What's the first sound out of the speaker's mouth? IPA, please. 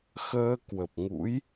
x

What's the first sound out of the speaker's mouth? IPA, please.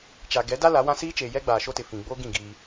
t͡ʃ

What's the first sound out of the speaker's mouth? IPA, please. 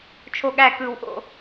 t͡ʃʰ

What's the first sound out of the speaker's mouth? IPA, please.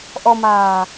ʔ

